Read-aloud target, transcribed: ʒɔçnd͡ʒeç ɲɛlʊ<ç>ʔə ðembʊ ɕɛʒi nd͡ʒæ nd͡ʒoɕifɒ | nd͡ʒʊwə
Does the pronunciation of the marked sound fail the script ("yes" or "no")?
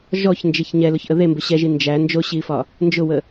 no